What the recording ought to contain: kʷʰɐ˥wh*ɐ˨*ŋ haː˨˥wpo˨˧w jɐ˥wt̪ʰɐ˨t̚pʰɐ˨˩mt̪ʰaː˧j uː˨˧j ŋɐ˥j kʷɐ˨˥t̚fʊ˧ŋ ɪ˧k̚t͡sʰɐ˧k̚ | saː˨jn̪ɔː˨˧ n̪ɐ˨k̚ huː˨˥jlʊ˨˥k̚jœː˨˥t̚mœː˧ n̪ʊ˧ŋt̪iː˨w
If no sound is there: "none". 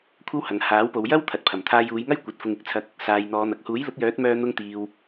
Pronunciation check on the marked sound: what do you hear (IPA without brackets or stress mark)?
ɐ˨